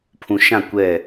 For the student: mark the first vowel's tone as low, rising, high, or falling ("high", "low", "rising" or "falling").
low